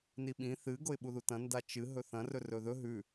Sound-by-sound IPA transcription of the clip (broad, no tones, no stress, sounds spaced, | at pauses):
n i ɓ ĩ θ ɨ ɡ o ɪ̯ ɓ u ð u t ɐ̃ n d a t͡ʃ ɨ ɦ ɵ θ ɐ̃ r ɵ r ɵ ð ɵ ɦ ʉ